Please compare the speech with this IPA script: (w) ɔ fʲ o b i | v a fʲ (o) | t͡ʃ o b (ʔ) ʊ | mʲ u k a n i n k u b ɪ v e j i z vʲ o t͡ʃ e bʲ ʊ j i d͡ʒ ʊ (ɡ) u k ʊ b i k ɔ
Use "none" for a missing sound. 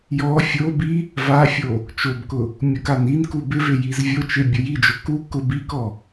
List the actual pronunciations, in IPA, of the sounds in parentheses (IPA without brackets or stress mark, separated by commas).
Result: j, o, k, k